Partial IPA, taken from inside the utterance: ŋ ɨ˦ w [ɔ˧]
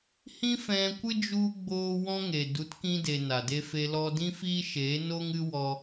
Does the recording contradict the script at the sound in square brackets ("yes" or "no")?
no